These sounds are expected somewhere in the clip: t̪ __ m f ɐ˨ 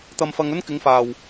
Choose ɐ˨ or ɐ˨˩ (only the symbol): ɐ˨